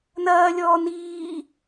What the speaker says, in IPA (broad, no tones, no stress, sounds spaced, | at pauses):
n ɐː lʲ ɔː n iː